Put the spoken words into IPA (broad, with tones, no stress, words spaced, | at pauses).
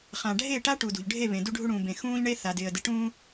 χã˨ɖʱe˦˨ʈa˦ ʈu˨dṳ˨ʎɖʱe˦˨βẽ˨ du˦ɖʱu˦ɽũː˨bẽ˨ xũː˦ʎɳe˦ θa˨dɪː˨ə̯ dɪ˨ʈũː˦